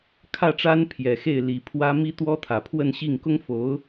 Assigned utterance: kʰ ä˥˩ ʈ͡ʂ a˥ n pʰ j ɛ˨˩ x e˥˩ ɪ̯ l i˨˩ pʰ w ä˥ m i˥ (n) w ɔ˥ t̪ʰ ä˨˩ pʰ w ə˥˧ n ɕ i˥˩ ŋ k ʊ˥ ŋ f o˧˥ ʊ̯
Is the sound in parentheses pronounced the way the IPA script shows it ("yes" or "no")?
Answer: no